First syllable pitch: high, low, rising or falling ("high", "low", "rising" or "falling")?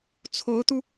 rising